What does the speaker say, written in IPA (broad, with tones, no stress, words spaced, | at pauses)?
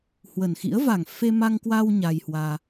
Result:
hwə˨˩nxḭ˧˥ə̯ va˨˩ŋfe˧ma˧ŋkwa˧w ɲa˧jhwaː˧